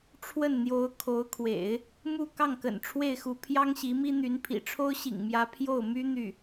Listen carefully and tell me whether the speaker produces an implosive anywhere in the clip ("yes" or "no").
no